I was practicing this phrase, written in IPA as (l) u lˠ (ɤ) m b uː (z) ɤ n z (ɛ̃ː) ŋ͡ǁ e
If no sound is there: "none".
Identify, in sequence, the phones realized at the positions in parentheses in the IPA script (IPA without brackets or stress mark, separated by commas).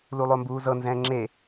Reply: l, o, z, ɛ̃ː